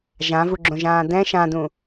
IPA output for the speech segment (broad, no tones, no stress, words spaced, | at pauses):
ʒãvuɡ͡ǁõʒãː dɛ̃ ʃãdũ